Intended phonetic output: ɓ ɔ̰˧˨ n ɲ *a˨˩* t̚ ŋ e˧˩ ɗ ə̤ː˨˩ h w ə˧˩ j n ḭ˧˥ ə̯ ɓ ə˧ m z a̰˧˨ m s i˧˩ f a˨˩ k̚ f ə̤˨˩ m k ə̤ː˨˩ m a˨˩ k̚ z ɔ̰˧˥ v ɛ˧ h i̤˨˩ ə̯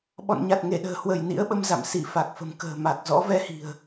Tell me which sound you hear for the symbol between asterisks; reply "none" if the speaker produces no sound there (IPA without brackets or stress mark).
a˨˩